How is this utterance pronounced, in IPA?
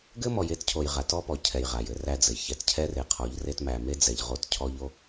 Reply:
ɡ ɘ˦ m ɔ˨ j e˦ t cʰ o˨ j ʁ a˨ t ɔ˦ p ɔ˨ cʰ ɛ˨ j ʁ a˨ j ɘ˦ r æ˦ d͡z ɘ˨ j ç ɛ˨ t cʰ ɛ˦ r e˨ qʰ ɔ˨˦ ʎ r e˦ t m æ˨ m e˦ d͡z ɛ˨ ʎ ʁ o˦˨ t cʰ ɔ˦ ʎ o˦

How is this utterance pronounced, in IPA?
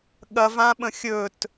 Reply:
ɠ ɐ v ã ɓ ə̃ xʲ ɵ t

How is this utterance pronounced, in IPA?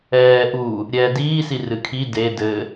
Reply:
ɛː ʔ u | ɾʲ ɛː d iː s i r ɨ kʰ i d e d ɘː

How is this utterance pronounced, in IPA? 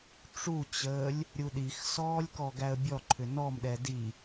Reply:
ʈ͡ʂ u t͡ɕ əː lʲ | ɾʲ u ɗ i x s ɔː lʲ k ɔ ɡ æ ə̯ bʲ ɔ ǃʰ ʏ n ɔ m ɗ ɛ d i

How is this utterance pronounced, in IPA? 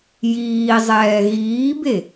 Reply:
j iː zˤ ɛː ɣ iː b e

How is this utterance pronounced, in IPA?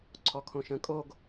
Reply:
ǀʰ ɔ kʰ õ ʃ ə̃ kʼ o ɡ

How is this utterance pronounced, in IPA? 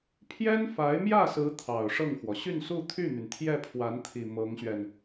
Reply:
pʰ j ɛ˥ n f a˧˥ ɪ̯ m j ä˥˩ s ɹ̩˧˥ t̪ʰ ɑ˨˩ ʊ̯ ʂ ɤ˥˩ ŋ x w ɔ˩ ɕ y˥˧ n s u˥˧ t̪ʰ y˥˩ n̪ y˩ n t̪ʰ j ɛ˥˩ pʰ w a˧˥ n t̪ʰ i˨˩ m ɤ˧˥ ŋ ɕ ɥ ɛ˧ n

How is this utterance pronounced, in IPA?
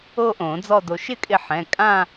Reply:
o˥˧ ʔ õ˨˩˦ d͡z ɔ˥˧ d o˧ ʃ ɪ˥˩ kʼ ɪ˧ ħ ɛ̃˩˧˩ kʼ ã˥˧

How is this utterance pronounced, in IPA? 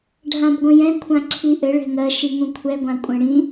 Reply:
ɖʱ ã b ɡʷ ə̃ j ɛ̃ kʷʰ ã ǁʰ i ʔ ɘ ɭ ɛ̤ ŋ ɜ ʃ i ŋ ũ kʷʰ ɛ ɡʷ ã kʷʼ ə̃ ɽ ĩ

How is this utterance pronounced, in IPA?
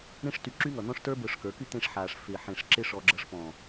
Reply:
ɾ ẽ˦ ʂ t y˧ ǁ y˦ ŋ ʌ˨ n̪ ɔ̃˦ ʂ t ə˞˦ b ə˞˧ ʂ k ə˞˨˦ k y˦ t̪ ẽ˧ ʂ ħ aː˨ ʂ f ɪː˨ ħ ẽ˨ ʂ ǁ ɪ˧ ʂ ɔ˧ ɡ͡ǁ ʌ˧ ʂ p ɔ̃˨

